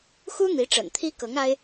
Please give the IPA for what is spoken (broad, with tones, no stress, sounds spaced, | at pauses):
x u˥ n̪ i˧˥ ʈ͡ʂ ə̰˨˩ n t̪ʰ i˥ k ɤ˧˥ ŋ a˥ ɪ̯